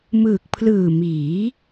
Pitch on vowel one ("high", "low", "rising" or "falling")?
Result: low